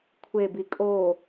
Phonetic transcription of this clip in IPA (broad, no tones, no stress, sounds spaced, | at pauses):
kʷʰ e b i kʼ o